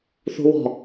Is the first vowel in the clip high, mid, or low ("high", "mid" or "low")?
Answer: high